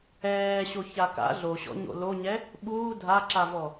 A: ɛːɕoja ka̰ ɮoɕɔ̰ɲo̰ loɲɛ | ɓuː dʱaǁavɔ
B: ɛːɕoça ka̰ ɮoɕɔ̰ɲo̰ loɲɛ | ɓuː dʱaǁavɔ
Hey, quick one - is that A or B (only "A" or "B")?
B